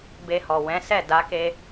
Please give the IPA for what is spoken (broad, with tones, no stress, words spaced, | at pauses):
be˧hɔ˨ wɛ̃˨˦ sɛ˦˨ da˨˦ke˧